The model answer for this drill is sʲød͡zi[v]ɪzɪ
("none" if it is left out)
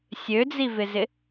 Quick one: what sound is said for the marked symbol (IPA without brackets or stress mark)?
v